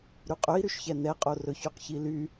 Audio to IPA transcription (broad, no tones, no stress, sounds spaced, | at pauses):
ɾ y qʼ ɵ i̯ ɾ y ʃ ç ɛ n ɛ qʼ o r ɵ ç y q ç i l y